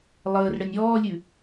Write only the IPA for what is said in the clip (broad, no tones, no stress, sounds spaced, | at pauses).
lˠ əː r ɽ ə nʲ ɔː lʲ ʉ